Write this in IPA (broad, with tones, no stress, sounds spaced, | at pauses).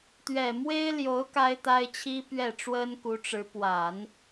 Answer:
t̪ ɥ ɛ˨˩ m w e˥ ɪ̯ l j o˧˥ ʊ̯ k a˥ ɪ̯ t̪ a˥ ɪ̯ t͡ɕʰ i˥ p ɥ ɛ˥˩ ʈ͡ʂ w ə˥ n k u˧˥ ʈ͡ʂ ɻ̩˧˥ p w a˨˩˦ n